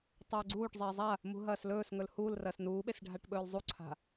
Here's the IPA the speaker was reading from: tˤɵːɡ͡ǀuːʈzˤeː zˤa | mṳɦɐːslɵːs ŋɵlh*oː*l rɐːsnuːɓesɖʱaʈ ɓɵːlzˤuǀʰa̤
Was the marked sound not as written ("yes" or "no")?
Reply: yes